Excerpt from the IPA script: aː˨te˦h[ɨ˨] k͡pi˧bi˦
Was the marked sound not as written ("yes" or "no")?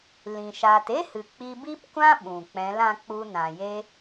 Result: no